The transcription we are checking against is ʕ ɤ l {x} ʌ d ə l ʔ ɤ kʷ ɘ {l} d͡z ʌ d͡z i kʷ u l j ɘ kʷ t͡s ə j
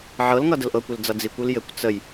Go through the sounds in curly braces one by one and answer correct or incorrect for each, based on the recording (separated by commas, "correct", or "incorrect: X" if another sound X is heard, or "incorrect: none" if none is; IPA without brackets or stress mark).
incorrect: ŋ, correct